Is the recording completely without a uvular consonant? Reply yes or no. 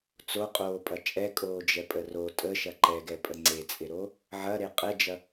no